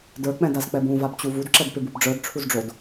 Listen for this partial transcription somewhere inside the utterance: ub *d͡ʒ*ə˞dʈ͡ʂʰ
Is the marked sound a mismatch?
yes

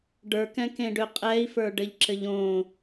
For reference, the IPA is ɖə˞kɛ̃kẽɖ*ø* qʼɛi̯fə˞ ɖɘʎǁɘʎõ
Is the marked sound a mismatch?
no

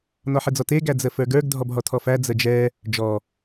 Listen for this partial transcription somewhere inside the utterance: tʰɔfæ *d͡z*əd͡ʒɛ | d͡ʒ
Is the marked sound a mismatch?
no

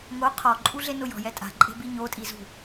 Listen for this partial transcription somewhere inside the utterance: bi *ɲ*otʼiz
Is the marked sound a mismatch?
no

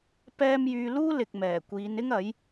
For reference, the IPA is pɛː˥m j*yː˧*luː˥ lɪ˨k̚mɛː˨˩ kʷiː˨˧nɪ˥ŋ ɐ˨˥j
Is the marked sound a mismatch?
no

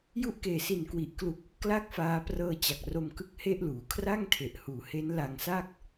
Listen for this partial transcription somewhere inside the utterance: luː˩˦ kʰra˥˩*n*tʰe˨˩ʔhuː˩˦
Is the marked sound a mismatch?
yes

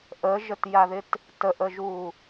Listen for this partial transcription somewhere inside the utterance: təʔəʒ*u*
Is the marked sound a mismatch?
no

